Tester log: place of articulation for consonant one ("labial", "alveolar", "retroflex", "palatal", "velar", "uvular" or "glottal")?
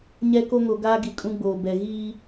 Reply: palatal